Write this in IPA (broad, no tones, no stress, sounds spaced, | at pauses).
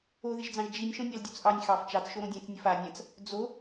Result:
o ð ɪ ʒ d͡z ɑ̃ ʒ d͡ʒ i nʲ ʃ õ nʲ ɑ l dʲ o t͡s ʔ ɑ nʲ x ɑ f t͡ʃ ɑ t͡s ʃ o ɾ õ dʲ ɛ̃ t͡s nʲ ə f a nʲ ã t͡s | d͡z o